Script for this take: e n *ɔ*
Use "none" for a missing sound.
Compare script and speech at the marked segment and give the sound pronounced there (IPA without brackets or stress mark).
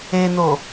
o